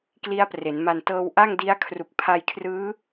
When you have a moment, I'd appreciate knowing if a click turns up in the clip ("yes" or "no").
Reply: no